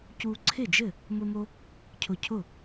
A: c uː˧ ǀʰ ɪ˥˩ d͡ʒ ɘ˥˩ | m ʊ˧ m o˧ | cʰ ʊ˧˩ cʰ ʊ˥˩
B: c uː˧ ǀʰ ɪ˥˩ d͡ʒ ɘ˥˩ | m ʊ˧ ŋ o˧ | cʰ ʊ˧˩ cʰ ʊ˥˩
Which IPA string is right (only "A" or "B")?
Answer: A